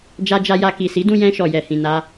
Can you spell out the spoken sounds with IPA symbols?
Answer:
d͡ʒ a˧ d͡ʒ a˧ j a˧ k i˨ s i˨˦ d ũ˧ j ɛ̃˧ ʃ ɔ˨ j ɛ˨ h ĩ˨ n a˧

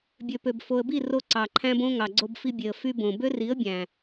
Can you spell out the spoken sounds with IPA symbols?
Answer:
bʲ ø˨ p ø˨ b f o˨ ə̯ b i˦˨ r o˧ ǀ ɑ˨ ǃʰ æ̃˦ b õ˦ ŋ ɑ˨ ɡ͡ǀ o˧ b f i˧ bʲ e˨ ə̯ f y˧ b õ˨ b ø˦ r i˨˦ ə̯ bʲ æ̃˨

